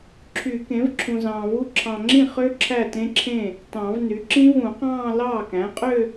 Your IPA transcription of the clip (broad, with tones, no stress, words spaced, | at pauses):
ǁʰy˨˩˦kẽ˩˥v ǁʰũ˨zɑ̃ː˨vu˦˥ ǁʰɑ̃˨ŋ͡ǁĩ˥˩χø˦˥ ǁʰæ˥˩tẽ˦˥ǁʰẽ˥˩ | tɑ̃˨˩˦vny˩˥ ǁĩ˦˥vũ˨˩˦qɑ̃ː˥˧ lɑː˥˩kæ̃˩˥qʼø˥˧